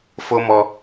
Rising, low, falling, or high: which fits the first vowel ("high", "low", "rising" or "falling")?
high